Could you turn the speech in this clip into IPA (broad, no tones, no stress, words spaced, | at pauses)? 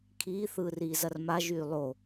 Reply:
kʰiːθɯːriːzɐr maʒyː lˠo